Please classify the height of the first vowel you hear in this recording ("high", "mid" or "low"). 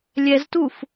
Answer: mid